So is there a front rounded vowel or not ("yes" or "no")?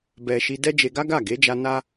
no